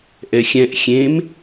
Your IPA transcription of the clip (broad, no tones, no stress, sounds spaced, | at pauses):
ʔ ɛ xʲ ɛ̃ ʔ xʲ ẽ m